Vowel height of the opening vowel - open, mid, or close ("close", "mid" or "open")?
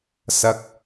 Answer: open